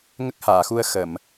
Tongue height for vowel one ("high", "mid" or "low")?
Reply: mid